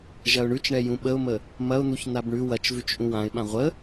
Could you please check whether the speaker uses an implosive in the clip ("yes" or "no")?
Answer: yes